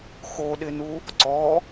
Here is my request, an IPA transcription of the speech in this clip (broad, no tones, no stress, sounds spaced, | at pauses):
x o ɗ ɪ n u | ǀ ɔ